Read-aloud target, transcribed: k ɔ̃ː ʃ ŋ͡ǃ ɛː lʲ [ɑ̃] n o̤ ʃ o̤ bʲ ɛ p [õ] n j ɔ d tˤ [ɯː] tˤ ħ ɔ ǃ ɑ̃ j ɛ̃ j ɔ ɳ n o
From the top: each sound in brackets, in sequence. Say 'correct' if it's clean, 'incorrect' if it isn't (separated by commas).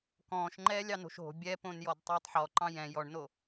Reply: incorrect, correct, correct